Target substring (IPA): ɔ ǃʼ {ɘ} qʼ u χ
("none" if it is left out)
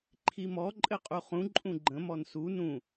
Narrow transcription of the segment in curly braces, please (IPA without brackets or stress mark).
ɘ